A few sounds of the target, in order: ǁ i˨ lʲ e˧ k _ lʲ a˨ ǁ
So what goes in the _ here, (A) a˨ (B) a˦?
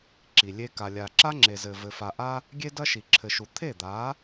A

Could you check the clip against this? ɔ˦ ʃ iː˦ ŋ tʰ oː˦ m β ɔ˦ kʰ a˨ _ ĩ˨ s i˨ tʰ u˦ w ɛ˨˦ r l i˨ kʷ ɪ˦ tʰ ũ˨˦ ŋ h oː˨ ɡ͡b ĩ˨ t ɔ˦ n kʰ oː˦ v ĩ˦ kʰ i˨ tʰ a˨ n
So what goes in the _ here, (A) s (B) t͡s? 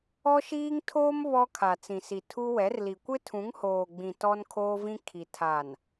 B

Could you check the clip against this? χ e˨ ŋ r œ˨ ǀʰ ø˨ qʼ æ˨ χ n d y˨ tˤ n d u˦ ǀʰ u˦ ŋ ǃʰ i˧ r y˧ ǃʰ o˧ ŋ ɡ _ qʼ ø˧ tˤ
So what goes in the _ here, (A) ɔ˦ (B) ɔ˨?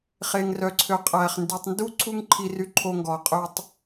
B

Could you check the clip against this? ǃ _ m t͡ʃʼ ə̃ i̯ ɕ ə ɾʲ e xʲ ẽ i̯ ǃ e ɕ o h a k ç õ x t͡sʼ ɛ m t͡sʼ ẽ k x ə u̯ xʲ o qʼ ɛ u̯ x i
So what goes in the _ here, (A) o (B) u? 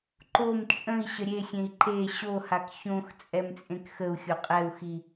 A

